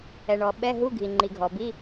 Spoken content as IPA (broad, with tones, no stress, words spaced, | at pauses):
ɛ˩ɳɔ˩ ɓɛ˧˥˧ɦu˧˥˧ɡʱi˩ ŋ͡ǃi˩ɡʱɔ˩bi˧˥˧